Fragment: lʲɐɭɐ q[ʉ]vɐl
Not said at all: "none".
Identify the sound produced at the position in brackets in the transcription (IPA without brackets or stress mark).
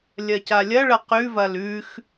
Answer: ʉ